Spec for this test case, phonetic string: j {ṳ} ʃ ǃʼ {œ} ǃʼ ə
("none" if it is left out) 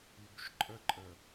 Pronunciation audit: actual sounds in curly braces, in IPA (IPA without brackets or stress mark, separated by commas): ṳ, ə